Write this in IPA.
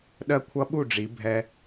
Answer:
ɗ ɜ˦ kʷʰ ʌ˦ ɓ u˦˨ ɖ͡ʐ i˨˦ bʱ ɛ˦

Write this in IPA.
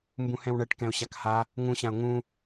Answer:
m b ũ h ɛ̃ w ɳ ɛ ʈ k ɛ̃ ʊ̯ ɕ a k h a | ŋ ũ ɕ ã ʊ̯ ŋ ũ

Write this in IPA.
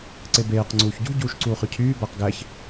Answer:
ǀ e b eː q ŋ͡ǀ uː ç ɟ ṳ ɟ uː ʃ ǀ uː χ y cʰ yː b æ q ɡ æ ç

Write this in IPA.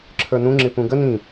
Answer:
ǁʰ ə˞ n ũ ŋ͡ǁ ɪ p ũ ɡ ə n ĩ

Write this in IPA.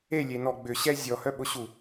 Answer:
e lʲ e n ɔ ɡ͡b ʏ ɕ ɛ zʲ ɔ h œ ɓ ʊ ɕ u

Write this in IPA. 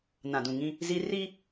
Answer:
n ã˨ d ũ˨ ŋ ĩ˦ | z i˦ r i˦

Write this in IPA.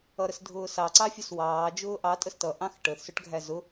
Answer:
ʌ ɾ ə s dʱ ʊː s ɑ ǀ ɑ fʲ ʊ s w ɑː d͡ʒ ʊː ʔ ɑ tʼ ə s t ʌ ʔ ɑ̃ x ʈ ə θ s ʊ ʈ ɡʱ æ z ʊ

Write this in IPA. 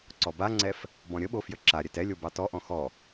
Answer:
ǀ ɔ b a ŋ͡ǀ ɛ f | b ɔ̃ ɾʲ ə ɓ o f j ə ǁ a ɾʲ ɛ t ɛ lʲ o b ɑ t ɔ ʔ ɔ̃ x ɔ

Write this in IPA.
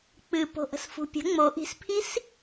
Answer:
k͡p ɨ p o̤ ʔ ə̤ s f ṳ pʲ ə̤ ŋ͡m o ʔ i̤ s pʰ i s

